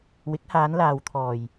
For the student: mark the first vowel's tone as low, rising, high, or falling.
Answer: rising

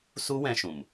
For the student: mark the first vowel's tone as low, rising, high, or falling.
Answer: high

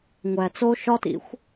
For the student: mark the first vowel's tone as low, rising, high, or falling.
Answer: low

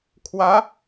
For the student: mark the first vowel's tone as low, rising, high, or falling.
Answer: rising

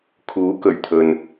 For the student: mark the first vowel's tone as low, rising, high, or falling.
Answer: rising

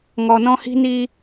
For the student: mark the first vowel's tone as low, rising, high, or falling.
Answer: low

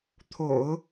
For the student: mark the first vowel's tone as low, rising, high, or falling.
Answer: low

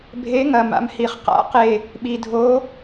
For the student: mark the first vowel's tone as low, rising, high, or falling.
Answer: rising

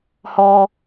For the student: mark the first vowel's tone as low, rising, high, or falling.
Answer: high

